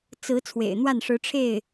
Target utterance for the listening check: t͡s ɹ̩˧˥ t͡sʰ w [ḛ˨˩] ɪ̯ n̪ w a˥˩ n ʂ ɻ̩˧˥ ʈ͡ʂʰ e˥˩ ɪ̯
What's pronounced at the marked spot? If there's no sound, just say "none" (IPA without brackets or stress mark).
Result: ḛ˨˩